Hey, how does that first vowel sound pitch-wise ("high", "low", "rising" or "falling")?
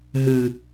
low